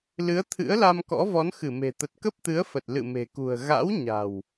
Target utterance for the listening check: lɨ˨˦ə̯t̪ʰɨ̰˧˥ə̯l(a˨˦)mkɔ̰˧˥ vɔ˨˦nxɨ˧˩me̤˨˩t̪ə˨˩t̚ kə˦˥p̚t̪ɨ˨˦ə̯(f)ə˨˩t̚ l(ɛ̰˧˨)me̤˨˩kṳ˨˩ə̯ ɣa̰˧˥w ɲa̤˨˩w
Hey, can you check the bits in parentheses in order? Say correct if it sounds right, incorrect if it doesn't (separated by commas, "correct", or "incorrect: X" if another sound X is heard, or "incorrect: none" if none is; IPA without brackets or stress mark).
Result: incorrect: a˧, correct, incorrect: ɨ̰˧˨